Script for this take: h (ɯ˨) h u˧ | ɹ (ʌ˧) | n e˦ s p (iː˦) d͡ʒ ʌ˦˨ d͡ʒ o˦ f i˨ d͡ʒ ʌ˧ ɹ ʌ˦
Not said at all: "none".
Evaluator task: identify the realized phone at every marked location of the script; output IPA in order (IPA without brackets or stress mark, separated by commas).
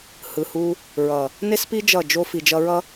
ɯ˨, ʌ˨, i˦